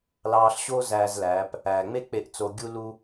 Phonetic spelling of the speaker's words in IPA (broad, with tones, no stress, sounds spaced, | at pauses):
l ɑː˧ ɬ ɕ o˥ z æː˧ z l æː˩˧ p | æː˩ ŋ͡m e˥ k͡p e˧ ʔ t͡s o˧ ɡʲ u˥ l u˥